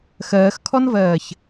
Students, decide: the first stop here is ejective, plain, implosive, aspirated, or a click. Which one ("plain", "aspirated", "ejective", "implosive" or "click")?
aspirated